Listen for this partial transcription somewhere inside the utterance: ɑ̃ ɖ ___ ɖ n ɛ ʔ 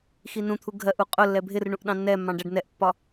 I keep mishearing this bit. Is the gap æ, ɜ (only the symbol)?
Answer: æ